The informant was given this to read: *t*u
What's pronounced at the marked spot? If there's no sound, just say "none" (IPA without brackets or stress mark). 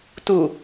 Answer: t